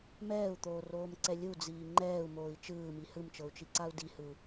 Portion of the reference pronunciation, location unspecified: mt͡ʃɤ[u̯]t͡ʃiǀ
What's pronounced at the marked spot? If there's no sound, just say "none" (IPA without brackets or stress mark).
u̯